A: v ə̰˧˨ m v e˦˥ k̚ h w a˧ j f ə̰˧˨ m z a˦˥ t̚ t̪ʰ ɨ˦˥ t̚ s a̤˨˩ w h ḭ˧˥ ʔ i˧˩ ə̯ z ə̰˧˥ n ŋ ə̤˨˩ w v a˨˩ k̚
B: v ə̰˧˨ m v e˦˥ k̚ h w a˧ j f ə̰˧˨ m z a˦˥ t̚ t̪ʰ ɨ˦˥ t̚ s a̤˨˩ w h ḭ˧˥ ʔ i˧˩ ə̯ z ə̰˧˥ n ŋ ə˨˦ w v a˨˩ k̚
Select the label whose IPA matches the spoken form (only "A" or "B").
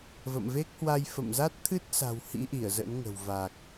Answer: A